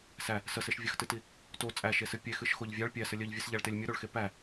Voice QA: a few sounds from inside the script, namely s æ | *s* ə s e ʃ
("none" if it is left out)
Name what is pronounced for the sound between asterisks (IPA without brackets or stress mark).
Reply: s